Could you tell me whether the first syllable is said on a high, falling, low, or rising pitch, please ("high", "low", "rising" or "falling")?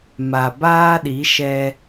low